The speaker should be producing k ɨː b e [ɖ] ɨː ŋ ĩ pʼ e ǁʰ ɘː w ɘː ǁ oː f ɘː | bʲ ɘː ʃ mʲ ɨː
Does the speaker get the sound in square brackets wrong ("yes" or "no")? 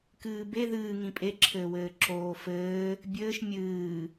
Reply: yes